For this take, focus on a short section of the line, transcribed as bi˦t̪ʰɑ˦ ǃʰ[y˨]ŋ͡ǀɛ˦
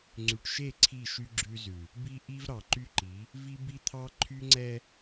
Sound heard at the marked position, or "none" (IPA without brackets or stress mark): y˦